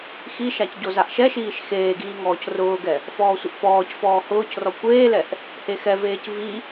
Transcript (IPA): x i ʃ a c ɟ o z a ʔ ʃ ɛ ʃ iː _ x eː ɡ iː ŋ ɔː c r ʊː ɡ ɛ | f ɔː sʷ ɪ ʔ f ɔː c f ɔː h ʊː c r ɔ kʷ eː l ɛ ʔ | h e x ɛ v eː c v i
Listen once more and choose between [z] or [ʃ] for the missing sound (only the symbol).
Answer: ʃ